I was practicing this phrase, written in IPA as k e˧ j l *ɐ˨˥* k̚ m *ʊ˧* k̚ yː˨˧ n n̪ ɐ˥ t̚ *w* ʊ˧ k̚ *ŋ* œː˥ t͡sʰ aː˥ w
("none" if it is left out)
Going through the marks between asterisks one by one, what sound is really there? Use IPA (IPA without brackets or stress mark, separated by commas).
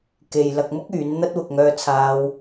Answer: ɐ˧, ʊ˥, w, ŋ